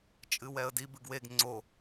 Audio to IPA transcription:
t͡ʃʼɨwɛə̯di bɨɡweɡ ŋ͡ǀo

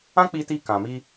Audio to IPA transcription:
ã˦k͡pi˧ti˧ kã˨mi˧

